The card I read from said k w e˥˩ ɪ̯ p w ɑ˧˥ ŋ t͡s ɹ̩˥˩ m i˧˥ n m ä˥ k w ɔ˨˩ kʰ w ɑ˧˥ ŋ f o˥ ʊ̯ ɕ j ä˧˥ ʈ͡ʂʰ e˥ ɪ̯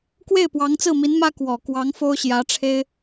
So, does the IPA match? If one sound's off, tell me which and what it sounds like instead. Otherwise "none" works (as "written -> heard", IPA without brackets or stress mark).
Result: kʰ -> k